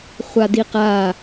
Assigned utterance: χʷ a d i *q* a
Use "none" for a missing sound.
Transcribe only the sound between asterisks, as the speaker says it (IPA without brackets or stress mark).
q